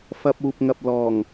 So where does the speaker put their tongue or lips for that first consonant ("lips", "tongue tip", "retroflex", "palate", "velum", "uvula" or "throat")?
lips